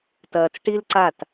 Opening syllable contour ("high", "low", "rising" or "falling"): low